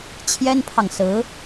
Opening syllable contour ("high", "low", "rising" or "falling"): high